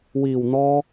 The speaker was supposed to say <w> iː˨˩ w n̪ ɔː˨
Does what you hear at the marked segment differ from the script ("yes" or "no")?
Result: no